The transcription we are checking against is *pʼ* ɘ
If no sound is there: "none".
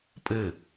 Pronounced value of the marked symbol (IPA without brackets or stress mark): pʼ